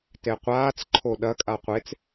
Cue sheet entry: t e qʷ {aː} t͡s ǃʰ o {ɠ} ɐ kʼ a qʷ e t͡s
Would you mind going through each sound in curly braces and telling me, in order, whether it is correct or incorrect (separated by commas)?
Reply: correct, incorrect